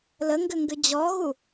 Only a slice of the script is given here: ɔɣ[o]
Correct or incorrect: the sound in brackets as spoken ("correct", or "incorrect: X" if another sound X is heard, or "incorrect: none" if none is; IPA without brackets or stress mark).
incorrect: u